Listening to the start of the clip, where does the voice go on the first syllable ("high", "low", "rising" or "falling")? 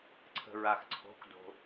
low